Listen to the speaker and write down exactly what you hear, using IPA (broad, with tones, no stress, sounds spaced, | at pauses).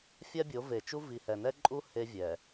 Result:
fʲ a˦ bʲ o˨˦ v e˨ t͡ʃ u˦ v i˨ h ɛ˨ n ɛ˦ ǃʼ u˦ h e˦ vʲ ɛ˨